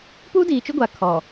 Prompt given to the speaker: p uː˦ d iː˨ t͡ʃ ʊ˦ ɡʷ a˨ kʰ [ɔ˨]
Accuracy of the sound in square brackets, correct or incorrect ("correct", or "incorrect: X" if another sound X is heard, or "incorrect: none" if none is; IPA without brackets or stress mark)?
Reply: correct